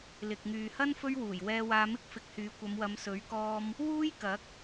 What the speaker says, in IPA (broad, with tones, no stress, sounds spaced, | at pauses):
l ɪ˨ k̚ ŋ yː˨ h ɐ˥ n f ɵ˥ ɥ w uː˨˩ j w ɛː˧ w aː˧ m ɪ˥ k̚ f ɪ˧ k̚ h yː˨˧ kʷ ɐ˨˧ m w ɐ˨˧ m s ɵ˨˥ ɥ k ɔː˧ m | w uː˥ j k ɐ˨˥ k̚